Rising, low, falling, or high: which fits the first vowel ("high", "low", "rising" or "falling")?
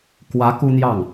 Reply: rising